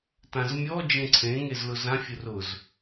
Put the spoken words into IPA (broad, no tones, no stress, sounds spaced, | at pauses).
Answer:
t ã z mʲ ɔ d͡ʒ ẽ ǀʰ ẽ ŋ e z l ʊ z ã fʲ ʊ r ʊ z